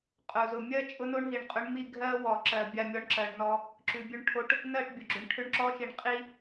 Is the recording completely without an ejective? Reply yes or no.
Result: no